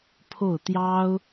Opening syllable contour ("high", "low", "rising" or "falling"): falling